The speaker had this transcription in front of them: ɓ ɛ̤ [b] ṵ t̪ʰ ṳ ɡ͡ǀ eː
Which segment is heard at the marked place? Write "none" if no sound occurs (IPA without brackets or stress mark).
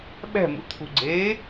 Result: m